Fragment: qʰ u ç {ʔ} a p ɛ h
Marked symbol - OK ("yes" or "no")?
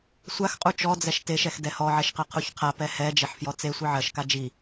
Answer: no